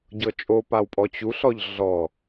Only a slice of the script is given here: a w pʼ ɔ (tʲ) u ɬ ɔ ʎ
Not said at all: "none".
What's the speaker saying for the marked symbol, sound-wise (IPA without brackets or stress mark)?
t͡ɕ